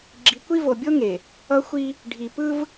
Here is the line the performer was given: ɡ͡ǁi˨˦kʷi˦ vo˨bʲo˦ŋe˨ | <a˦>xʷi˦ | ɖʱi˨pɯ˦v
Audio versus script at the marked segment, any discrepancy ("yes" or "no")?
yes